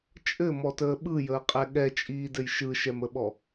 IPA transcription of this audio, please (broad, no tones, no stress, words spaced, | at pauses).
t͡ʃʼɘmɔtəː ɓɯjəːqʼɛ ɠɛt͡ʃʼiːdɘj ʃɯʃɛməɓɔ